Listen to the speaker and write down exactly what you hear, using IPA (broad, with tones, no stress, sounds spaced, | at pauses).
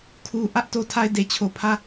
kʰ u˨ ʔ ä˦ ʔ t o˨ tʰ a˦˨ ɪ̯ d e˨ t͡ɕʰ o˨ pʰ ä˦˨